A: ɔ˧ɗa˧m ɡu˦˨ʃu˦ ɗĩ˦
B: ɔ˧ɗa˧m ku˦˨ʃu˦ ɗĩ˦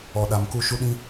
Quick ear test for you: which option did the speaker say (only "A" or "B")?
B